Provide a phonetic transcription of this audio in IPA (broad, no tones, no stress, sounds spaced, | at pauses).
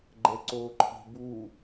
ɡ͡ǃ ɛ ǀ oː ǃʰ i̤ b u